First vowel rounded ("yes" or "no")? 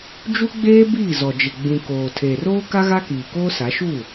yes